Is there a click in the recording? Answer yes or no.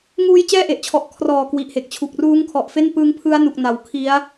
no